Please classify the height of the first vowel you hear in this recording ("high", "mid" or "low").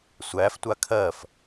low